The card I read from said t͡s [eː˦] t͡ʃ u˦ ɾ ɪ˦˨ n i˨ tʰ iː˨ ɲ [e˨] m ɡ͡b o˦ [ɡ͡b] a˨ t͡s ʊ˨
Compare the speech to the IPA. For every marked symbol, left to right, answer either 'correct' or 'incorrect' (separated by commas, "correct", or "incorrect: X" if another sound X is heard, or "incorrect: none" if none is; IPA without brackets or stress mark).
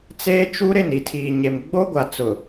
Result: correct, correct, incorrect: ɡʷ